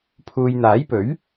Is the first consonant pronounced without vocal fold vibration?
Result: yes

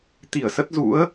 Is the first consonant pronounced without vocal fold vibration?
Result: yes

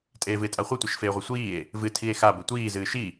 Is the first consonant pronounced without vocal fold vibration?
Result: yes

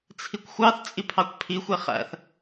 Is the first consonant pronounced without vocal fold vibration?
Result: yes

